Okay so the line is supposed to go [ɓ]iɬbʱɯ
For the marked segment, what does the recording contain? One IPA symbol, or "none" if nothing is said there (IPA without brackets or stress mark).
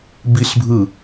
b